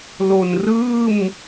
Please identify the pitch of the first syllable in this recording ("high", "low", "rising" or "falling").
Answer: low